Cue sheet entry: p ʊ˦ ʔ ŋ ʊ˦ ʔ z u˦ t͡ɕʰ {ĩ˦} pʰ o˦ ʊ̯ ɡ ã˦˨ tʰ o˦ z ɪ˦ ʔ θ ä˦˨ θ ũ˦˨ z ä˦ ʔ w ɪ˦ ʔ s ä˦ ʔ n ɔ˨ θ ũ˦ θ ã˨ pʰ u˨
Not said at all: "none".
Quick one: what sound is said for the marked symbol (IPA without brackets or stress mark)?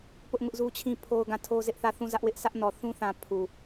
ĩ˦